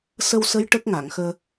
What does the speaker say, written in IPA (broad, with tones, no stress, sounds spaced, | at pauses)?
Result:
s ə˧ w s ə˧˥ j ʈ ə˦˥ k̚ ŋ a˨˩˨ ŋ x əː˧